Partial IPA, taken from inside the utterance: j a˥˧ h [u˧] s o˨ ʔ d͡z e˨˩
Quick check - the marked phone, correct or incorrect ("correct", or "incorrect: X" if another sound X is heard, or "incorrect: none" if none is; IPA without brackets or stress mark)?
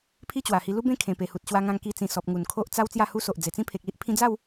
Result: incorrect: u˦